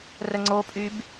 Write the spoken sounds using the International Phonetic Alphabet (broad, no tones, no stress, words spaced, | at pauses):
rəŋ͡ǀopʼyb